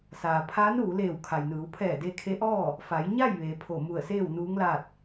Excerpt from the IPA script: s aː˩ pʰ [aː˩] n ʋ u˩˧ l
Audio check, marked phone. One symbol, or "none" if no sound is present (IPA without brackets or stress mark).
aː˧˥